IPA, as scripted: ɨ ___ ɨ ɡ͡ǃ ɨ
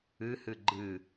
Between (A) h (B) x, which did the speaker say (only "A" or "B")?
A